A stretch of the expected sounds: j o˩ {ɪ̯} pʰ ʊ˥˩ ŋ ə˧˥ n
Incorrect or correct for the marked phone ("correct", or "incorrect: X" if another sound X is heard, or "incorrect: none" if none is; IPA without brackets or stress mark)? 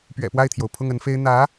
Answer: incorrect: ʊ̯